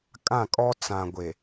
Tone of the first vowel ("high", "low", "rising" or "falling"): falling